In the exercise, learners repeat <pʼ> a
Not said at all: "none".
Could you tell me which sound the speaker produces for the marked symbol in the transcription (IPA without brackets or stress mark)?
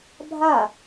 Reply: bʱ